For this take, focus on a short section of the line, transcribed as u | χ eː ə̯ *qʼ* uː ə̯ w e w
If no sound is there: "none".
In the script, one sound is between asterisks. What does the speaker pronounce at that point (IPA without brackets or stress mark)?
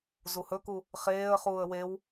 χ